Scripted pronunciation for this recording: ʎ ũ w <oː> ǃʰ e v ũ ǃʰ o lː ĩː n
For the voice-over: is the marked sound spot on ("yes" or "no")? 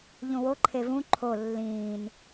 no